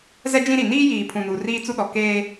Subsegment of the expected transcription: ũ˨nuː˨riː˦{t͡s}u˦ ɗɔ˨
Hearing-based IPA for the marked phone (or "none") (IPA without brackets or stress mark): t͡s